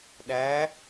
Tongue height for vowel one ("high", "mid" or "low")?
low